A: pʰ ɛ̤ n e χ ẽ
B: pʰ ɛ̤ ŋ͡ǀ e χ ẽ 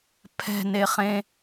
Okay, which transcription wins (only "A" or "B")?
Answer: A